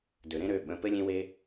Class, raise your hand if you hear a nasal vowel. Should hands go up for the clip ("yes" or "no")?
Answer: yes